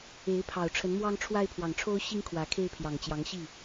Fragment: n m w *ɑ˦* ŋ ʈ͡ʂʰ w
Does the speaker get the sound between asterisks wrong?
no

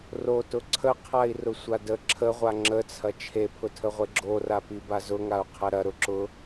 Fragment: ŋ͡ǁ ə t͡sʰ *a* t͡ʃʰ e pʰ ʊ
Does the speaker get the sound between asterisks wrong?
yes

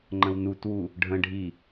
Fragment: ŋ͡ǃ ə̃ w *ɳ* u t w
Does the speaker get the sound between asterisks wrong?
yes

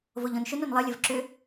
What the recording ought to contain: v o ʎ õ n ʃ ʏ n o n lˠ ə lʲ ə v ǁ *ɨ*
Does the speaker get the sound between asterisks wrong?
yes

